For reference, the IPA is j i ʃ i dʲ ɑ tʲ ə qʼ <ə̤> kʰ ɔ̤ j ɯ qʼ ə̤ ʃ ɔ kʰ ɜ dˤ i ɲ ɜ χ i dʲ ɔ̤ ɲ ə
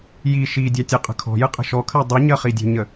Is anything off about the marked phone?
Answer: no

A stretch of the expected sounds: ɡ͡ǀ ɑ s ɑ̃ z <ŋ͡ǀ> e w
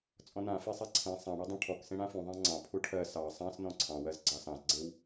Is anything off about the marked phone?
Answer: yes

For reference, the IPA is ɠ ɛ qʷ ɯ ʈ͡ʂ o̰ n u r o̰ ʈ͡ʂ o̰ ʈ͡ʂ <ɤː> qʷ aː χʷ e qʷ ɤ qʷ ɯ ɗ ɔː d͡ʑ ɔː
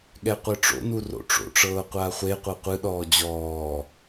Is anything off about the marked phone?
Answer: no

